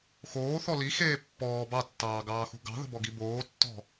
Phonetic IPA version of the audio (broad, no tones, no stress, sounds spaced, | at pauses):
x oː θ ɔ l i x eː pː ɔː b ɑ tː ɑː ɡ ɑː x ṳ ɡ ɑ̤ ð ə̤ b ɔ ɡ i b oː tː ɔ̤